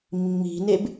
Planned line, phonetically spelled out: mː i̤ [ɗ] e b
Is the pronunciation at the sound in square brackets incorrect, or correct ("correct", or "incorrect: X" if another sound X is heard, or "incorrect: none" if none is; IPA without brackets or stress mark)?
incorrect: n